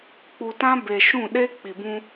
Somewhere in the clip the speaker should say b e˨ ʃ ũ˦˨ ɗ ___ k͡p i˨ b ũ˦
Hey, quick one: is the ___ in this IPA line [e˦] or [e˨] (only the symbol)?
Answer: e˦